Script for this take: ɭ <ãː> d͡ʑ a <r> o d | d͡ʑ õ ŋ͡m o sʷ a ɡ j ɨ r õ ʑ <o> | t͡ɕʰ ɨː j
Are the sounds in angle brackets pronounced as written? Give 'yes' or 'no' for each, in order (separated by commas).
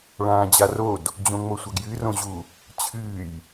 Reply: yes, yes, no